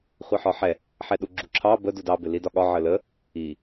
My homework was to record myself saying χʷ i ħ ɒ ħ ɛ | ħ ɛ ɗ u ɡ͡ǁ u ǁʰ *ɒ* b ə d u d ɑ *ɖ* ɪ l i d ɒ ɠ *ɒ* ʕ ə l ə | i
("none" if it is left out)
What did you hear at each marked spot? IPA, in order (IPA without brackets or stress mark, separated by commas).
ɑ, b, ɒ